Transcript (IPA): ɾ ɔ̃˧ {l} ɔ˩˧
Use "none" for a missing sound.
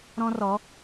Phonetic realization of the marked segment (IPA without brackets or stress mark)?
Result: r